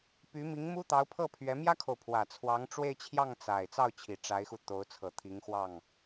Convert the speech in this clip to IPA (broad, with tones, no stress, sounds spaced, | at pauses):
p y˧˥ m i˧˥ ŋ m u˥ t̪ ɑ˧˥ ʊ̯ pʰ ɤ˥˩ pʰ ɥ ɛ˧˥ m j ä˥ kʰ o˨ ʊ̯ pʰ w ä˨˩ t͡sʰ w ɑ˧˥ ŋ ʈ͡ʂ w e˥˧ ɪ̯ t͡ɕʰ j ɑ˥˩ ŋ t͡s a˨˩ ɪ̯ t͡s ɑ˥˩ ʊ̯ t͡ɕʰ i˨˩ ʈ͡ʂ a˧˥ ɪ̯ x u˧ t̪ o˧˥ ʊ̯ t͡sʰ ɤ˨˩ t̪ʰ i˧˥ ŋ x w ɑ˥˩ ŋ